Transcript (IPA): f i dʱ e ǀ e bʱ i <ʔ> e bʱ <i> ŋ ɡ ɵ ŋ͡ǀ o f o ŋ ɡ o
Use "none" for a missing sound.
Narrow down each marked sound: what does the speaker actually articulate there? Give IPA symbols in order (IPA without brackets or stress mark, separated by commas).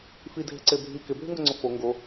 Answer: k, y